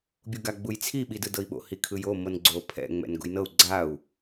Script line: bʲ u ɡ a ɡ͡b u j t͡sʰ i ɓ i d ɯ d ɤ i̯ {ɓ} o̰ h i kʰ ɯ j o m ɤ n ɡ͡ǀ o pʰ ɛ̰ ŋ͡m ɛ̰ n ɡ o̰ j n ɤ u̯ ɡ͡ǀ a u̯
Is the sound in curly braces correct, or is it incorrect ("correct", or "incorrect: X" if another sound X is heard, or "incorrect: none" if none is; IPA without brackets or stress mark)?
correct